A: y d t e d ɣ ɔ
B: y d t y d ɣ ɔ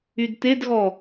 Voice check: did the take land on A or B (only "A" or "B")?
A